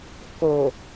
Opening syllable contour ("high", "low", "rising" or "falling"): low